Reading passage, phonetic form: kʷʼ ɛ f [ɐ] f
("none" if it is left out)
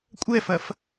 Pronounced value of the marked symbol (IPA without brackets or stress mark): ɐ